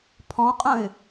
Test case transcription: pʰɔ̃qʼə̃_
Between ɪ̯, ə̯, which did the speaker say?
ɪ̯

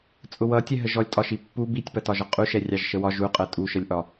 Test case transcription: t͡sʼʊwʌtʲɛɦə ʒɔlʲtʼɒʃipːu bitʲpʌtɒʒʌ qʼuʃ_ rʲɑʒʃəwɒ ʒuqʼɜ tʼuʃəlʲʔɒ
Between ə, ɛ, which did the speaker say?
ɛ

